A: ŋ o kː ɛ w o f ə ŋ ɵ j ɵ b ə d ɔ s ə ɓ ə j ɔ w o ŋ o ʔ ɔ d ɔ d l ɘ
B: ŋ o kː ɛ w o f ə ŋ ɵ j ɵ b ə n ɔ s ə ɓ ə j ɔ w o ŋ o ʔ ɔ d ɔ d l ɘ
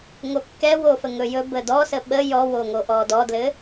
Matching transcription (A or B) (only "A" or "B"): A